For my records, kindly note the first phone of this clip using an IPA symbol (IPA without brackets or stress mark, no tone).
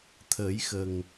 t̪ʰ